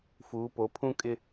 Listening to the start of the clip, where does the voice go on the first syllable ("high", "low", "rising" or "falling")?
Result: rising